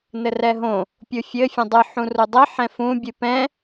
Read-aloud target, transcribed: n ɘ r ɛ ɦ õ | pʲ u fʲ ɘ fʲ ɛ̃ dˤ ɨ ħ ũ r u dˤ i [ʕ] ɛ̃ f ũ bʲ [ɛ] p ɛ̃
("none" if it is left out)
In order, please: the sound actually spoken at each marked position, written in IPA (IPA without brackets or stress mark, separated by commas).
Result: ħ, ɨ